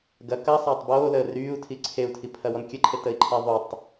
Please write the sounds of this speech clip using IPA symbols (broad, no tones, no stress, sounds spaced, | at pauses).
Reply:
ɡ ɐ k ɐ sˤ ɐː tˤ b oː l əː r yː u̯ tʰ i ǀʰ e u̯ tʰ i pʰ ɐ w ɔ n kʲ ə ǃʰ e t ə i̯ ǃʰ e ðˤ u tˤ